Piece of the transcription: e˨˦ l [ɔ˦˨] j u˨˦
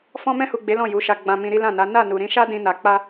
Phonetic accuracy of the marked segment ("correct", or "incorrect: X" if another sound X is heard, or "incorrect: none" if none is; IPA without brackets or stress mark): incorrect: ɔ̃˦˨